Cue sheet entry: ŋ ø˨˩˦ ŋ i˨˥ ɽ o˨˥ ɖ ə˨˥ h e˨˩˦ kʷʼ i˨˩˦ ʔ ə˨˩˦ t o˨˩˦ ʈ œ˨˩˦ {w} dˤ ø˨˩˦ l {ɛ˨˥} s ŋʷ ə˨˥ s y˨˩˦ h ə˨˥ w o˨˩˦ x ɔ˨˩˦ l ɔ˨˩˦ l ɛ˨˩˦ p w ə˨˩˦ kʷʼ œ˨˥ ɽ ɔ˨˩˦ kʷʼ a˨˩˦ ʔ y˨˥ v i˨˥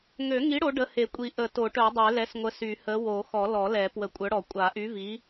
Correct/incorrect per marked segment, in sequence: incorrect, correct

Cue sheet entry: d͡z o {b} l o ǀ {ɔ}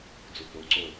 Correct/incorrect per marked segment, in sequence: correct, incorrect

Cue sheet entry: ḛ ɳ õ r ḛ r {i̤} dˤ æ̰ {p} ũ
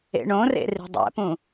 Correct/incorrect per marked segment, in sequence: correct, correct

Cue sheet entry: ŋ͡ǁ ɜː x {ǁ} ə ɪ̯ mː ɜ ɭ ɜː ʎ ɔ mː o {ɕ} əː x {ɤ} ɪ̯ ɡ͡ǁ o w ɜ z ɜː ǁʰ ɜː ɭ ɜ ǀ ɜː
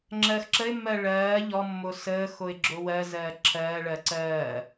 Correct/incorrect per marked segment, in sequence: correct, incorrect, incorrect

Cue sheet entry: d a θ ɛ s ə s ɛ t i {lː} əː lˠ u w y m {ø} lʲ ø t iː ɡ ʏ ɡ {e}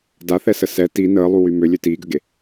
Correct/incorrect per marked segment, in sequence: incorrect, correct, correct

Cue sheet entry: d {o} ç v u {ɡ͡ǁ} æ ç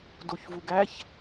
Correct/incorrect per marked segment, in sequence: correct, incorrect

